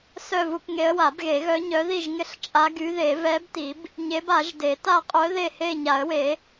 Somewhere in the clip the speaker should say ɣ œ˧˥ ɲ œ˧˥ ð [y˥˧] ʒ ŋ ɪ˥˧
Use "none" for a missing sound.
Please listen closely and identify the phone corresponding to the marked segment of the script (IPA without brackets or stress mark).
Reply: i˥˧